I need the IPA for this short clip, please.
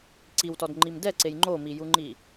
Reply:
ǀ i w t ɔ d ŋ͡ǃ i m d ɛ ǀ e j ŋ͡ǃ o m i j u ŋ͡ǃ i

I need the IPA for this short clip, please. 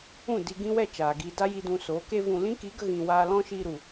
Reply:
ũ˦˨ d i˧ ɡ ĩ˦ w ɛ˦˨ t͡ʃ aː˨ ɡ i˧ d a˦ j i˧ d ũ˧ s oː˨˦ k e˦ v ũ˧ l ĩ˦ k i˨˦ ɡ ə˧ ɣ ĩ˨ w aː˧ l ɔ̃˦ ʃ iː˧ ɾ u˨

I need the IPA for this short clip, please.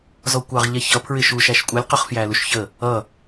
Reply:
z ɔ kʷ ɑ ʁ ʎ ɛ ç ʌ pʰ ɹ ɪ ʃ u ʃ æ ʃ kʷʼ ʌ lʲ q ʊ χ f j æ l u ʃ ç ə | ʌ

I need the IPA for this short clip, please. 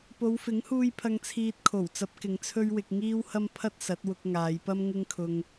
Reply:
p o˨˧ w f ɪ˨˥ ŋ h uː˧ j pʰ ɐ˧ ŋ t͡sʰ iː˧ t̚ kʰ o˨˩ w t͡s ɐ˨˥ p̚ k ɪ˨˧ ŋ t͡sʰ ɵ˥ ɥ w ɪ˧ k̚ ŋ iː˥ w h ɐ˥ m pʰ ɐ˥ t̚ s ɐ˨˥ t̚ w ʊ˧ k̚ ŋ aː˨˧ j p ɐ˥ m ŋ ɪ˥ ŋ kʰ ʊ˧ ŋ

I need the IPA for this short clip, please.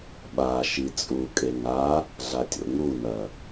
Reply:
ɓ a ʃ i t͡sʼ u kʼ e ŋ a | ɮ a tʲ o̰ ŋ u n ɐ

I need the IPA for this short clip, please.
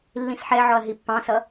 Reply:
lː ĩ s ħ ɛ ʕ ɔ ɐ̯ ɦ i pː ɑ̃ s ʌ

